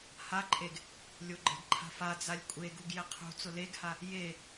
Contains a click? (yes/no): yes